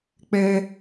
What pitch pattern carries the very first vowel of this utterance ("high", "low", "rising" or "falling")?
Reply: high